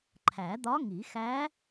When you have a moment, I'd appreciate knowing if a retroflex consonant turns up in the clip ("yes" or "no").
no